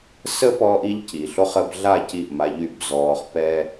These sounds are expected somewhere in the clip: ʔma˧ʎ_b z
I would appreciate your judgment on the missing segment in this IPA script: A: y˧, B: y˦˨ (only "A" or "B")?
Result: B